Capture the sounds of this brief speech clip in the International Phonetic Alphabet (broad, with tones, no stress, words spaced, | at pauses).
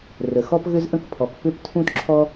rə˩xɔ˥pɣʏ˥zʔə̃˥k pʰɔ˩k pʏ˥ptʰũ˥tǁʰɔ˥